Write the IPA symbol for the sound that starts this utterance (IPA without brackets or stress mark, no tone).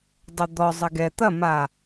dˤ